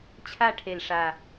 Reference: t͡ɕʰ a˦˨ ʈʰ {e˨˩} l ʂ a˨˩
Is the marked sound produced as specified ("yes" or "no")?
yes